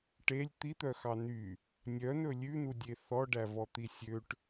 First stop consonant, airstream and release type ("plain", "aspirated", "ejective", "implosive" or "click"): plain